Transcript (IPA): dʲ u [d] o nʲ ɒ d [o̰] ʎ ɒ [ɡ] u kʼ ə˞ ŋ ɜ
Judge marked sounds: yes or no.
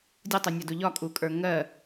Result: no, no, no

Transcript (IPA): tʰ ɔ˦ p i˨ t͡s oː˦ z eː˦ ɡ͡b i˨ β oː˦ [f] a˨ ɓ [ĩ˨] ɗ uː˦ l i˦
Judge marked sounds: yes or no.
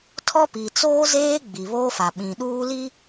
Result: yes, yes

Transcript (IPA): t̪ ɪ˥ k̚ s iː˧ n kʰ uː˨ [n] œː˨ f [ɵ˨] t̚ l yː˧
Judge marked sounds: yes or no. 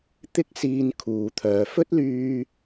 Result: no, no

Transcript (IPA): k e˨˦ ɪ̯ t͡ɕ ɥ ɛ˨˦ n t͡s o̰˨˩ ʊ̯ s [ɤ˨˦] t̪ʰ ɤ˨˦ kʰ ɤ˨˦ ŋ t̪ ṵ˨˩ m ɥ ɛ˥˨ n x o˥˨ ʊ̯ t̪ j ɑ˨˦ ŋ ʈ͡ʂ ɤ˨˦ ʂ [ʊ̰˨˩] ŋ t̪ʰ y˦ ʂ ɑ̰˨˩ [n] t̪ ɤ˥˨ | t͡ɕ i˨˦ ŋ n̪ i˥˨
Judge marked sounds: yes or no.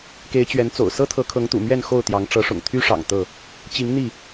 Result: no, yes, no

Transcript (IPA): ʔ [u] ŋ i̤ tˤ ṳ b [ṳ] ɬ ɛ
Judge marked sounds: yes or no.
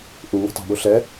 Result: yes, no

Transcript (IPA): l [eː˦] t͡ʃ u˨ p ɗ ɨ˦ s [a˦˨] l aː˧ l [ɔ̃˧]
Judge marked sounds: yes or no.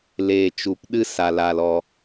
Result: no, no, no

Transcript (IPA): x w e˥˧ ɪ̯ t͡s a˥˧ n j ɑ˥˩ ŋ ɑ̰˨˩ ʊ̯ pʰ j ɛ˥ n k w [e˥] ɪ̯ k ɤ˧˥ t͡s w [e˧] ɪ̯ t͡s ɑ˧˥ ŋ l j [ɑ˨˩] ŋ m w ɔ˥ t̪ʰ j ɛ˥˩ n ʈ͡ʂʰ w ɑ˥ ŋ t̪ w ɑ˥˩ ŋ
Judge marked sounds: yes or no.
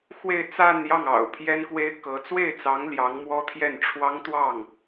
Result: yes, no, no

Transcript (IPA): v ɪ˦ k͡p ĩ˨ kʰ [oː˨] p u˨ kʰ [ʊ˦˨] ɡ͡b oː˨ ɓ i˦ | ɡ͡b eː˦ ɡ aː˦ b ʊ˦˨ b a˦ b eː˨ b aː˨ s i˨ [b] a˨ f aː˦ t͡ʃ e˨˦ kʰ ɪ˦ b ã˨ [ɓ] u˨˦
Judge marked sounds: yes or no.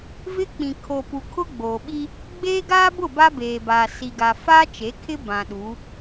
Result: no, no, no, no

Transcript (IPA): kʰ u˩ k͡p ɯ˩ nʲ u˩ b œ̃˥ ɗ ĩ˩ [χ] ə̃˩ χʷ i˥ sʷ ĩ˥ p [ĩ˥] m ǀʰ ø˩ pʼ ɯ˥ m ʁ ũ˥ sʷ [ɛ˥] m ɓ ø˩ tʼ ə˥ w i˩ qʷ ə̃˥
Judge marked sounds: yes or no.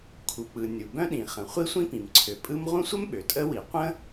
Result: yes, no, no

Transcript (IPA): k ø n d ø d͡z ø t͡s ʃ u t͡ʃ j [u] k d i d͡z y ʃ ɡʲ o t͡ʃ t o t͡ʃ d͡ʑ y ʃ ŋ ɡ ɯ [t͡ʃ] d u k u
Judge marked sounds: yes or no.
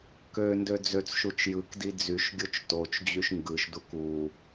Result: no, no

